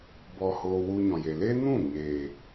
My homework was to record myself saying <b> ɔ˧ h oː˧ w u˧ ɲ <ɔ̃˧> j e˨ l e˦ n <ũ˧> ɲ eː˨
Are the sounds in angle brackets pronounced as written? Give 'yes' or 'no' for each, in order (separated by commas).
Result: yes, no, no